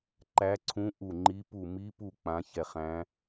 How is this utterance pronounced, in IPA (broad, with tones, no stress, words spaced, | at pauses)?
ǃæ˧˥ǀʰũ˧˥ ʔu˦˨ŋ͡ǃi˧˥pu˦˨ mi˧˥pu˦˨ k͡pã˧˥çɛ˦˨χæ̃˧˥